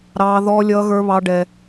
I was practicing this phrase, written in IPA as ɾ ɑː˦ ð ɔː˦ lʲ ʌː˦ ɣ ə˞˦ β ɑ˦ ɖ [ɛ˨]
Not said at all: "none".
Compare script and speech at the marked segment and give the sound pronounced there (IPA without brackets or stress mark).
ɛ˦